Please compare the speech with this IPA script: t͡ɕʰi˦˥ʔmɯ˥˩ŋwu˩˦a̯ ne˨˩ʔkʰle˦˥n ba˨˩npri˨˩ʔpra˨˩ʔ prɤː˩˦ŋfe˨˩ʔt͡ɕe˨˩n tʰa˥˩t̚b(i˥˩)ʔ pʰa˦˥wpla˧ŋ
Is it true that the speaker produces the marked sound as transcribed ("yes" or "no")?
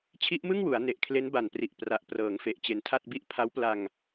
yes